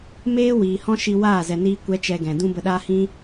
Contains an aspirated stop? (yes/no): no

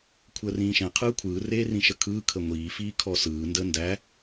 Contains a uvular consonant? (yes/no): yes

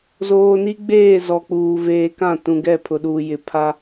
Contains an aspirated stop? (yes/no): yes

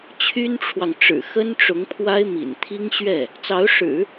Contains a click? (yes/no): no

